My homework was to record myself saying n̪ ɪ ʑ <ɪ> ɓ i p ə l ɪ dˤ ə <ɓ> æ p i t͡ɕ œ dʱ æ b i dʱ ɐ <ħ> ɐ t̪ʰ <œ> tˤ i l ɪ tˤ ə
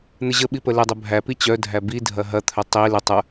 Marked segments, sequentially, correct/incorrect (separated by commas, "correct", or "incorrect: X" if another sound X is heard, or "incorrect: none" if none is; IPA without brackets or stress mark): incorrect: ə, incorrect: bʱ, incorrect: ɦ, correct